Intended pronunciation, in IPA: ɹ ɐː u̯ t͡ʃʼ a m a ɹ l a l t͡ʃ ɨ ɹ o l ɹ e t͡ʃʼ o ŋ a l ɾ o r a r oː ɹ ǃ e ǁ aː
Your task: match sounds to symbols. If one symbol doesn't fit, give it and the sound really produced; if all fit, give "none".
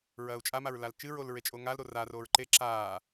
none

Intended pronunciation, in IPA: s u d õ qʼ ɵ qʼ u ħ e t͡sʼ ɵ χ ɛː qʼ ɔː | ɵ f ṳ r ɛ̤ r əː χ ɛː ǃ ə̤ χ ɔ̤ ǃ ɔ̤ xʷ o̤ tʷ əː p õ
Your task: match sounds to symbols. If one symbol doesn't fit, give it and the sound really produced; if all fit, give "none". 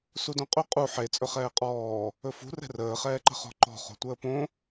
xʷ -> χ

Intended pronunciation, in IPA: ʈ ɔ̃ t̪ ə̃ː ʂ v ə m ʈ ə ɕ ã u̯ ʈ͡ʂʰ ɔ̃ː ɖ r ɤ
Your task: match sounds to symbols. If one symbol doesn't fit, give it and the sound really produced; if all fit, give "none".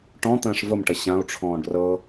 none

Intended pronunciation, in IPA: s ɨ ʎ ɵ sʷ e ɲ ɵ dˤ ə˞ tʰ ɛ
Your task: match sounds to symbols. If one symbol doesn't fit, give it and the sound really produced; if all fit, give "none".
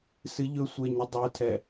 none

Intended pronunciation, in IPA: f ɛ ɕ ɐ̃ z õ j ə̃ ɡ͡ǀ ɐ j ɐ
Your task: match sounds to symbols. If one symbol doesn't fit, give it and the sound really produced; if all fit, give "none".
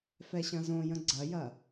none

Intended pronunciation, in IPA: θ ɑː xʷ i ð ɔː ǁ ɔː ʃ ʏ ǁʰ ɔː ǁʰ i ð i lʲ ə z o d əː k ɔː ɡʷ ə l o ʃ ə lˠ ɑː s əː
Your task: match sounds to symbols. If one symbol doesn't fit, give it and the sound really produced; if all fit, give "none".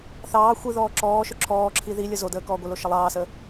none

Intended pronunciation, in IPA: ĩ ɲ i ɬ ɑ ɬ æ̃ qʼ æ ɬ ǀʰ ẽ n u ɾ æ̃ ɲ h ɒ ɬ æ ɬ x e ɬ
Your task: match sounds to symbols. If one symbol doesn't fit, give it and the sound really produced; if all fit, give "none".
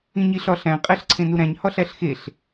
ɑ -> ɒ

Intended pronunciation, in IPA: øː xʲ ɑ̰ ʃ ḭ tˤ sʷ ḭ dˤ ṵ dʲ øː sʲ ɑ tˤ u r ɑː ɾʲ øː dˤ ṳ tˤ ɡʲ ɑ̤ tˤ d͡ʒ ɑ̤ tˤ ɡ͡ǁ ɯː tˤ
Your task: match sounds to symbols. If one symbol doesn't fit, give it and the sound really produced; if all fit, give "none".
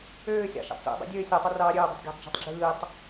none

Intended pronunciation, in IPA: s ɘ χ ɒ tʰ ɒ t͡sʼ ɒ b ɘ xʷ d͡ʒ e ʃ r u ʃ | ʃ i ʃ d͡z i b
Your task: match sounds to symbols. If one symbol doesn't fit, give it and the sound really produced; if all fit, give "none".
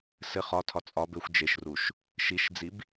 none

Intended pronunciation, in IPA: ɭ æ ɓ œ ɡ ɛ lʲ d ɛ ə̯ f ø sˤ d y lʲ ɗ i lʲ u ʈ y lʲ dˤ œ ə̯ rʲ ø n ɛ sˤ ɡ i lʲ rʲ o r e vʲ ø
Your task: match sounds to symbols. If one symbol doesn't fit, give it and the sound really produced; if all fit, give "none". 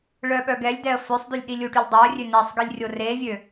æ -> œ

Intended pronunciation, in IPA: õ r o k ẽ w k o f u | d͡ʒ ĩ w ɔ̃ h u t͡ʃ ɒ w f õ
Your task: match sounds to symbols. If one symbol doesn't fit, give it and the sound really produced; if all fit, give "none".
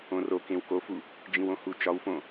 ɔ̃ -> õ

